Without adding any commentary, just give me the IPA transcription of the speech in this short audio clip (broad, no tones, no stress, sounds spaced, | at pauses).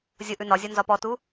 zʲ o ʔ ʉ n ɒ zʲ ɒ n z ɒ p ɔ t u